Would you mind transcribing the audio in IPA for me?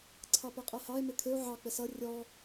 ǀʰɑpɛqʼɛhɑe̯ mɪkʰɪo̯ ʕɑ k͡pɪsʌ rʲɔ

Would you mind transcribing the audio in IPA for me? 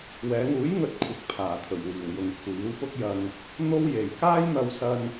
wɛː˨˧ŋuː˨˥j ŋɵ˧t̚kʷʰɪ˨k̚ pʰaː˨˩t̪ʰɵ˨˩ɥwiː˨˩wjʊ˨ŋ kʷʰiː˨˥wpʊ˥k̚jɐ˧n | n̪o˥wje˨j kaː˥jn̪ɐ˧wsɐ˧n

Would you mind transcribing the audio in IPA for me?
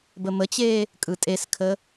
bəmət͡ɕeː | kʼɯtʼeskʰə

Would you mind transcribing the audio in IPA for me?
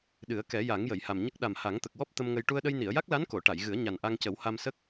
ɗɨ˨˩˦ə̯kɛ˨˩˦ja˨˩˦ŋ jə˨˩˨jha˨˩mɲə˦˥k̚ ɗa˨˩m ha˨˩˦ŋt̪ə˨˩k̚wɔ˦˥p̚ t̪ə˧mŋə˧j ʈu˧ə̯ɗə˧j ni˨˩˨ə̯ja˦˥k̚la˧˥n ko˨˩˨ ʈa˨˩˨jɣɨ˨˩˦ə̯ ɲa˨˩nʔa˧ŋcə˨˩˦w ha˧msə˦˥k̚

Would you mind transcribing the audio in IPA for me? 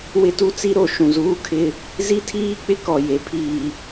wɪ˦tu˦t͡si˦ɾo˨ ʃũ˨zuː˦kʰɪ˦ | zi˦tʰiː˦k͡pɪ˦ kɔ˨ je˨pʰiː˨

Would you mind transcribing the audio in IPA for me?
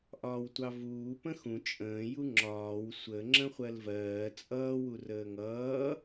ʔɒːwtʷɑvuː pə̃xũ t͡ʃʼə̃ː juŋ͡ǁɒːw sʷə ŋ͡ǁə̃χʷɜlvɜː t͡sʼʌː wurəːŋʌː

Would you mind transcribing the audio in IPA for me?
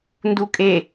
ndukʼe

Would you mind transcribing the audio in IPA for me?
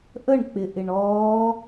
ʔəɳk͡pɪʔɪɳ ɔː

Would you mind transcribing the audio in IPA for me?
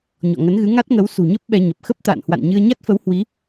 ɲɔ̰˧˨ŋə˨˦nɣɨ˨˦ ŋa˦˥t̚ŋə˨˦w sṳ˨˩ɲə˦˥p̚ ɓɛ˧ɲə˨˩p̚ xə˦˥p̚t̪a̰ː˧˨n hwa̰˧˨nɲɨ˧ə̯ɲa˦˥t̚fə˨˦w hwi˨˦

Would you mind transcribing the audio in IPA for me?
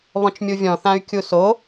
βɔ̃t͡ʃmʲuvʲɔ̃θãy̯ kʲuso

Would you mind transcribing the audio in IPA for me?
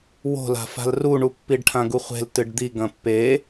wo̤la̤fa̤l ruɳu pːiɖʈʰãɡuχʷe̤l tɨɖd̪i ɡɐ̃pːe

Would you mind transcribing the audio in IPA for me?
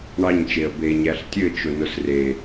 ɳɑɲt͡ʃeə̯ be ɲæɬtʲɘt͡ʃʊ nʊsre

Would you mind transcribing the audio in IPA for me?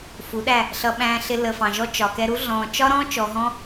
fu˨˦ɗæ˦˨ | ɬʌ˧ ɓæ̃ː˧ɬɪ˧ lə˨fɑ̃˨ʒɔ˧ t͡ʃɒ˨kɛ˧ɾu˦ ɮɔ̃ː˨t͡ʃɒ˦ɾɔ̃ː˦ t͡ʃɔ˧ɦɔ̃˦

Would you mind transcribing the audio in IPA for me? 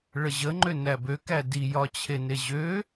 ɭəʑəŋ͡ǃø næbøkæ dijɒt͡ɕʰene ʑø

